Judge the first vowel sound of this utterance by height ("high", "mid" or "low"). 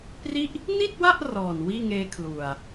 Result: high